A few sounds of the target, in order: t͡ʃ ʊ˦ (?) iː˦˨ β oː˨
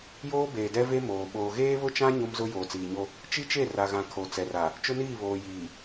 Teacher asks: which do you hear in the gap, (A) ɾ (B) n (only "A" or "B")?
B